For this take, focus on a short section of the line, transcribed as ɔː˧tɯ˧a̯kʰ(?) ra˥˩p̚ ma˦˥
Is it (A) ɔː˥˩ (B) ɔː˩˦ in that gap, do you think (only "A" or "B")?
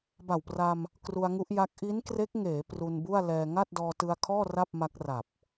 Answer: A